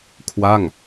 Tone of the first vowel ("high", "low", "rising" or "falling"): falling